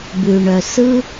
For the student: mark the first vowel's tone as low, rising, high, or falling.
low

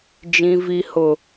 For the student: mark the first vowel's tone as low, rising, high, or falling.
low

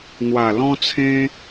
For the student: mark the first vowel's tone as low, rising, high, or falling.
low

